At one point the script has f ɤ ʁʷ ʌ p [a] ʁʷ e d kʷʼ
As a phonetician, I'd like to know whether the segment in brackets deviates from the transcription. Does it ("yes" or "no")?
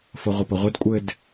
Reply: yes